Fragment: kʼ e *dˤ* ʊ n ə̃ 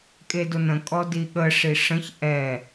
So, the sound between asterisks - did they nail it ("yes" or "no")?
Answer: no